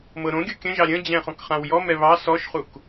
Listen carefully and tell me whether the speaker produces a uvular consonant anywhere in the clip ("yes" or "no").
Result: yes